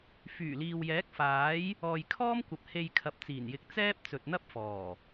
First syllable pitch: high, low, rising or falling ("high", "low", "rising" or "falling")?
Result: low